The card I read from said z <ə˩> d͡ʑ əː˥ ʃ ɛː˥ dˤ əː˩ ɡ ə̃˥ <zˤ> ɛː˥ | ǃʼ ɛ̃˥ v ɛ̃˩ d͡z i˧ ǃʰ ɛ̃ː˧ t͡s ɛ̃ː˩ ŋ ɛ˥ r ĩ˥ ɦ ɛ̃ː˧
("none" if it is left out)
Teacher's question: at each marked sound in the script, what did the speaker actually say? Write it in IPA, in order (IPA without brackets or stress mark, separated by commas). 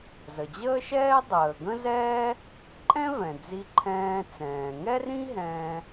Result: ə˩, z